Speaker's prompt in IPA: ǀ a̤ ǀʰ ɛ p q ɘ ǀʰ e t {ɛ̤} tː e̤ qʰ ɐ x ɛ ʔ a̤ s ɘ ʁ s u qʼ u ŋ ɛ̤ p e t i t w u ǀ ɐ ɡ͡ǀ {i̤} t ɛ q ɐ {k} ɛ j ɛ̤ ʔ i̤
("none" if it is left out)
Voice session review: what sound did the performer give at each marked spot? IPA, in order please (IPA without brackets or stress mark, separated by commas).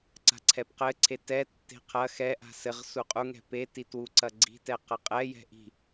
ɛ, i̤, qʼ